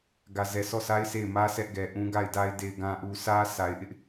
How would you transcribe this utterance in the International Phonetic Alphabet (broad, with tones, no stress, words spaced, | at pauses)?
ɡä˨zɛ˨sɔ˦˨sʰa˦ɪ̯ se˦˨ɪ̯mä˦ sɛ˦ʔɡɛ˨ʔũ˦ ɡa˦˨ɪ̯da˦ɪ̯ de˨ɪ̯ɡã˨ʔu˨sä˦ sʰa˨ɪ̯ʔɪ˦ʔ